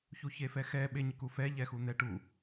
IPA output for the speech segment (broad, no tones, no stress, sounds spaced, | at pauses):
ç u ç e f ɛ x ɛ ɓ e ɲ ɪ k u f ɛ ʎ ɛ x u n̪ ɛ ʈ u